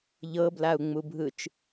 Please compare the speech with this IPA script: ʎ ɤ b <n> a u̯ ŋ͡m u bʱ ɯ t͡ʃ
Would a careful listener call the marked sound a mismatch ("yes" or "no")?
yes